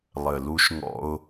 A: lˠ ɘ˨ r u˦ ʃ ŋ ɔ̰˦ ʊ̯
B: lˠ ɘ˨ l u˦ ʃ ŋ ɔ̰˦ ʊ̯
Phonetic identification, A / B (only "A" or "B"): B